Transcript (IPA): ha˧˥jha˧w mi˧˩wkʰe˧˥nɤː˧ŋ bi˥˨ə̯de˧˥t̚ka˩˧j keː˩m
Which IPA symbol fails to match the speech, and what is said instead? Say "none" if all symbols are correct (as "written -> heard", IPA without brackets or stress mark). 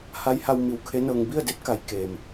none